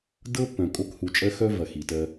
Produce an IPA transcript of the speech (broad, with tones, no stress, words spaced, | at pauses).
dɤ˦ pːœ̃˨kʼo˦k hu˨t͡ʃʼɜ˦xœ˦ vɐ˨xi˨tɜ˦